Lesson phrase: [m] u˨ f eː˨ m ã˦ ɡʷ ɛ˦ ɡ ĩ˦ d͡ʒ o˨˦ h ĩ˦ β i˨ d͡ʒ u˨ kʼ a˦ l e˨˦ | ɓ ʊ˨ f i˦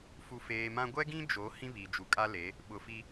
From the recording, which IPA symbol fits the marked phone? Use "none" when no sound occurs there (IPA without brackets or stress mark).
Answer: f